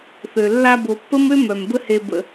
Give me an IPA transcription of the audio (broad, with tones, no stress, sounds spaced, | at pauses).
θ ø˨ lː a˧ b o˨ pː ə˦ m ø˦ m œ˨ m b ə˦ h e˧ b ə̰˧